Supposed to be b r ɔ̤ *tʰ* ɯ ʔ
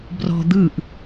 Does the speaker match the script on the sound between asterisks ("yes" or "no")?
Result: no